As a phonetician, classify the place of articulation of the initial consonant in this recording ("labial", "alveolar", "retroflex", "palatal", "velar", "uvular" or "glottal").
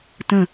alveolar